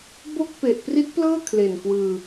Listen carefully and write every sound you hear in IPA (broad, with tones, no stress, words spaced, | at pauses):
bo˥˩k̚ pe˨˩ʔ pri˦˥t̚plɤː˥˩ kʰle˨˩nkwɯː˧